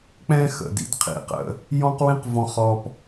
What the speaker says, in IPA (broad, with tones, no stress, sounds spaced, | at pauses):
k͡p ɛ̃˦ x ə̰˨ d ḭ˦ d qʰ ḭ˨ q ə̰˦ | j ɔ̃˦ q w ĩ˦ q v ɔ̃˦˨ χ ɔ˦ p